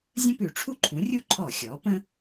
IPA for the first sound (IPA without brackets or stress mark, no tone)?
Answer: zʲ